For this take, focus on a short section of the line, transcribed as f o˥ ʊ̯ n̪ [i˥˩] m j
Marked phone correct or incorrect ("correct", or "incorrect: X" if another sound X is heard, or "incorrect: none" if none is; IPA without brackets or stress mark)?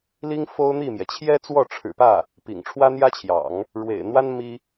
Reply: correct